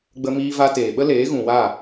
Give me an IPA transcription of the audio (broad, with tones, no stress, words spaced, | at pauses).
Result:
ɡ͡bə˧miː˧ va˧teː˨ɓə˦ leː˨˦ɣũ˨wa˦˨